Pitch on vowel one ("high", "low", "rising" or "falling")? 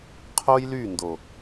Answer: high